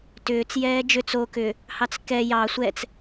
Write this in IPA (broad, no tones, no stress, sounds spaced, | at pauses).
t ʏː t͡s j ɛː d͡ʒ ʏ t͡s o k ʏ | h ɑ t͡s k ɛ j ɑ sʷ ɛ t͡s